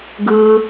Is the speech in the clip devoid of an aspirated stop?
yes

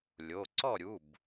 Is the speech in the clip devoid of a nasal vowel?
yes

